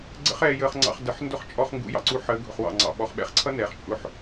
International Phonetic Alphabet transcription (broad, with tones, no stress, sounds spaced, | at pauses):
ɡ͡ǀ ə̰˦ χ ɛː˧ j əː˧ χ ŋ͡ǀ ɑ̰˧ χ d ə˨ ħ n d ʊ˦ χ t͡ʃʼ ɔ˧ χ ŋ ɡ ṵ˨˦ j ɑ̰˨ ǀ u˧ ħ əː˨˦ ɡʱ ʊ˨ χ w ɑ̰˨ ŋ͡ǀ ɑ̰˨ ɓ ɔ˨ χ ɓ ɛ̰˧ χ ǀʰ ʌ˦ n ɛː˨ χ t͡ʃʼ ʊ˧ ħ